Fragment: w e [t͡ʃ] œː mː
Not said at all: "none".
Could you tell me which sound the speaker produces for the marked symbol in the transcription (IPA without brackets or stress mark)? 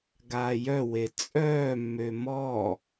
t͡sʼ